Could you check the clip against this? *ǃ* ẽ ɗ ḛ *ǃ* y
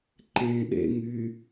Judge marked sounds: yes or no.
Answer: yes, no

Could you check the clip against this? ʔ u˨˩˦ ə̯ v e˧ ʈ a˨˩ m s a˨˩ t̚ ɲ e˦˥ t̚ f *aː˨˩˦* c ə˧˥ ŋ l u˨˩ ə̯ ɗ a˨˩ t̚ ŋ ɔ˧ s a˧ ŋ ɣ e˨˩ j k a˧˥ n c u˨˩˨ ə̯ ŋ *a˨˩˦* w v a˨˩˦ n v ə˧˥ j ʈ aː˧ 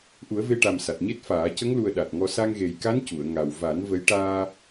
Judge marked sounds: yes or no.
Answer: yes, no

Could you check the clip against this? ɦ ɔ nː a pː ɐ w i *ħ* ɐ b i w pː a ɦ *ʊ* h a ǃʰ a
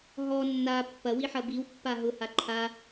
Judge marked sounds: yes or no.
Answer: yes, yes

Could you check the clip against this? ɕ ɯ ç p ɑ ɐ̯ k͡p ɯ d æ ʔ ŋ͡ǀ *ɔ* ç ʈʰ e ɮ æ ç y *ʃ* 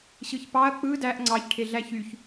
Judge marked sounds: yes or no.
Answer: no, no

